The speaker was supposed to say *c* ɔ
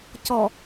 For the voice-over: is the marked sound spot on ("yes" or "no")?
yes